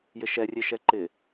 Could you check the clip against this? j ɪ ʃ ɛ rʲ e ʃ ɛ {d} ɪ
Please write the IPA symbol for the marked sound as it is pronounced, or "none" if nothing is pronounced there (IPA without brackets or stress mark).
ǃ